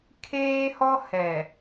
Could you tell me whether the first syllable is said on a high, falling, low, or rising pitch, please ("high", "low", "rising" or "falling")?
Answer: high